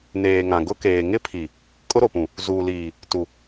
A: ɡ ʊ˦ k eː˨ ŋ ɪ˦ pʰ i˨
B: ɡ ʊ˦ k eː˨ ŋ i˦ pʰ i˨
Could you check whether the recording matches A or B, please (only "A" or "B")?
A